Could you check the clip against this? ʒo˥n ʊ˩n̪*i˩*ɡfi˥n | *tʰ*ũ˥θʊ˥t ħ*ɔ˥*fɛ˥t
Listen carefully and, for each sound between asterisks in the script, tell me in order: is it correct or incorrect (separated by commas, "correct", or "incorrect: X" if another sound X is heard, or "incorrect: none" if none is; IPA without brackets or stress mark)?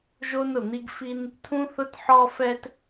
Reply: incorrect: i˥, correct, correct